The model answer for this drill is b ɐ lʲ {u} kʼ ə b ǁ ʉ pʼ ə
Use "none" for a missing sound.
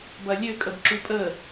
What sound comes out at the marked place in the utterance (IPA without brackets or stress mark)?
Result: ø